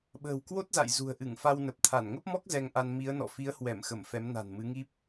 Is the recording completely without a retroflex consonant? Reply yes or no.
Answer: yes